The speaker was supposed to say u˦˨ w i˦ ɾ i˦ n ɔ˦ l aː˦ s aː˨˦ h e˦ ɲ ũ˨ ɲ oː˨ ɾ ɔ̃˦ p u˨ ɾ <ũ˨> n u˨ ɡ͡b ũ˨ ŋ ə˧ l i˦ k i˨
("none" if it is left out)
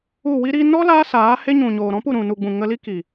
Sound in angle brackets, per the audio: ũ˨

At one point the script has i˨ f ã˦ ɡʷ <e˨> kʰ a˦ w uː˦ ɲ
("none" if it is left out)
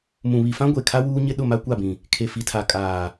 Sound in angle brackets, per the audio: e˨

